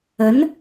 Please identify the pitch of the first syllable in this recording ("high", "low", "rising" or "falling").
rising